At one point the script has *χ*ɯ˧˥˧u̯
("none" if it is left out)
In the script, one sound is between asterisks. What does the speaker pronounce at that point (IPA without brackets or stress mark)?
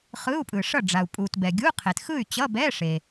χ